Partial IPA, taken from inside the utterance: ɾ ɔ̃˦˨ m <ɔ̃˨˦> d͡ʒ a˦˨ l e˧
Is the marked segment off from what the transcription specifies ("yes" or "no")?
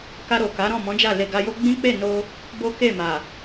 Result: no